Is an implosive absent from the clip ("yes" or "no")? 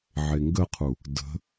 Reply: yes